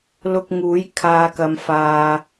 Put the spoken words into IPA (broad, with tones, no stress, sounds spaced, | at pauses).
l ʊ˧ k̚ ŋ uː˨˥ j kʰ aː˧ k ɐ˧ m f aː˧